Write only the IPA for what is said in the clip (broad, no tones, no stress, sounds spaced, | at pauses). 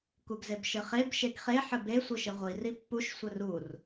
k u ɡ z e b ʃ ɘ χ e b ʃ e ɡ χ e ħ ɘ b e sʷ ɘ ʃ ɘ ʁʷ i r i pː u ʃ sʷ ɘ r u r